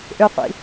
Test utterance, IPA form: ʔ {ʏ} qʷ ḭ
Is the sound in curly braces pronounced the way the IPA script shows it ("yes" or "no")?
yes